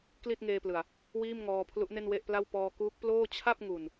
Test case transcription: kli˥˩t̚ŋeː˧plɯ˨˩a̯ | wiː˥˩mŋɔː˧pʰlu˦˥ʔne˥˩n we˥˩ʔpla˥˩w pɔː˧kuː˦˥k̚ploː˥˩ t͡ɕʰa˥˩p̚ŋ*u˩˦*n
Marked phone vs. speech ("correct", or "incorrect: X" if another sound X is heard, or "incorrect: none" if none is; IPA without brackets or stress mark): incorrect: u˨˩